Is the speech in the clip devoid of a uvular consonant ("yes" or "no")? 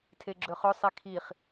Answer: no